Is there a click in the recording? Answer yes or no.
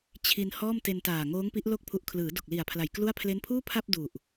no